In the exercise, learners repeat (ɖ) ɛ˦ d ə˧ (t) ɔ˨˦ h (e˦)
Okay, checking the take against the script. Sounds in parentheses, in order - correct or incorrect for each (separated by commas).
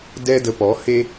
incorrect, incorrect, correct